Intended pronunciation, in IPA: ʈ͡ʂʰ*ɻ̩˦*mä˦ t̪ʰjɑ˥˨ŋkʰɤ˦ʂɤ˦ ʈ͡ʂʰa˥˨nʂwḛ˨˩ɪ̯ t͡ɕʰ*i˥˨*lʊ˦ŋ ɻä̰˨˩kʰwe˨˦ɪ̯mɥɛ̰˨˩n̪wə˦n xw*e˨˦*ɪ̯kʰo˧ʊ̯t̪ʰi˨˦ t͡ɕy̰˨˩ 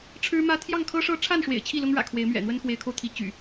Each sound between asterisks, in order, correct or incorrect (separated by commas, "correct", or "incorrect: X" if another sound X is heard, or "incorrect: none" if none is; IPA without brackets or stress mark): correct, correct, correct